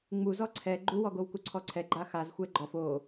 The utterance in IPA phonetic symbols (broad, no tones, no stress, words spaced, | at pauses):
ŋ͡muzɔ ǀʰɛ ɡ͡ǃuwɔɡow kuǀʰɔǀʰɛ ɡ͡ǃaxaz xʷɛɡ͡ǃɔf o